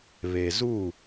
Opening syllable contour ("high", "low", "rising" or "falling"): low